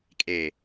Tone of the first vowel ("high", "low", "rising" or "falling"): low